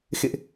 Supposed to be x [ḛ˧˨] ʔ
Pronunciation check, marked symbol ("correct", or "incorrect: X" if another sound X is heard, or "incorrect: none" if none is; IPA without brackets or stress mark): correct